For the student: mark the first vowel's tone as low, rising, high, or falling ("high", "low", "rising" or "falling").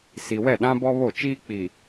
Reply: low